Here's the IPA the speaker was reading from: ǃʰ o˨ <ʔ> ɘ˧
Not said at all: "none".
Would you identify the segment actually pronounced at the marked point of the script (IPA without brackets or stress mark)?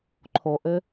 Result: ʔ